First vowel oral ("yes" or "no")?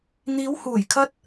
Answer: yes